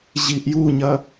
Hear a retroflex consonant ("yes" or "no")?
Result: no